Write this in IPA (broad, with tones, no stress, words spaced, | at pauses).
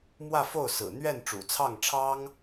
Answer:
mwä˥˧fo˥˩ʊ̯sɹ̩˨˩ n̪ɥɛ˥˩nʈ͡ʂṵ˨˩t͡sʰɑ˥˩ŋʈ͡ʂʰɑ˥ŋ